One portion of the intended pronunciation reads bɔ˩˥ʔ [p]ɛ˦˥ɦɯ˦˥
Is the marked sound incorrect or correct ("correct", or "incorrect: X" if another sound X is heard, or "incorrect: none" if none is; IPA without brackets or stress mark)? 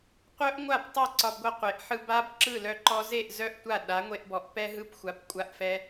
correct